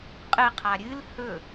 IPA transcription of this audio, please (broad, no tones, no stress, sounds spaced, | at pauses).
qʼ ɨ qʰ a ɾʲ ɨ l h ɵ